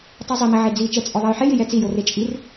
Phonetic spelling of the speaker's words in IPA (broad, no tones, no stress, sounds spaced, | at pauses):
tˤ e zˤ ɪ m ɛ ʕ e d͡z i t͡ʃ ɛ t͡sʼ ɔ ðˤ ɛ j ħ ɪ j ɪ j ɛ t͡s i j o r e t͡ʃʼ i r